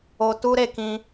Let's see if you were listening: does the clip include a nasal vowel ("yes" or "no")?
yes